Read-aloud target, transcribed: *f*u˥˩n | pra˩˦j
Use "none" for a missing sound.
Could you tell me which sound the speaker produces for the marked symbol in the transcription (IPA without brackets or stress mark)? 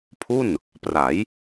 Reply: pʰ